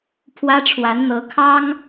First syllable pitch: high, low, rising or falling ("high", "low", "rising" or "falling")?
high